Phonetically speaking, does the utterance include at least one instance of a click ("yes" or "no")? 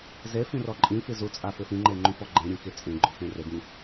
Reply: yes